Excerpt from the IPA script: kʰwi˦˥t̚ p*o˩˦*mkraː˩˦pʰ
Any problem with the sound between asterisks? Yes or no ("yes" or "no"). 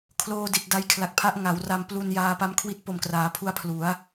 yes